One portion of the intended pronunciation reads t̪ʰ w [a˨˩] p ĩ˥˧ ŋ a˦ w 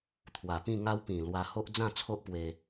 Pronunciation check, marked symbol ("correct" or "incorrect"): correct